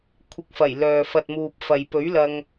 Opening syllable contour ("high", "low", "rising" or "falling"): low